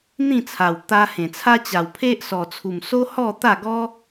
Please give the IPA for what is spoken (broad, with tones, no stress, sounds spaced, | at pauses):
n̪ ĩ˥˧ t͡sʰ a˨˩ w t̪ a˧ h ẽ˨˩ t͡sʰ a˦ t͡ɕ a˨˩ w pʰ e˦ ʔ s ɔ˨˩ t͡sʰ u˨˩ m s o˦ h ɔ˥˧ t̪ a˥˧ ɡ ɔ˦